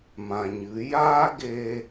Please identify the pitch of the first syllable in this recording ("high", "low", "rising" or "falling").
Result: low